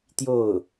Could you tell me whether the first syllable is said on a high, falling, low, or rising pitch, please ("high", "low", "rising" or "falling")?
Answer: falling